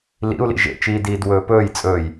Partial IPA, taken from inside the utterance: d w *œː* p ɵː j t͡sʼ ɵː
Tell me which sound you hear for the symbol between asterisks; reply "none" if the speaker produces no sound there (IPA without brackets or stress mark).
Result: ɵː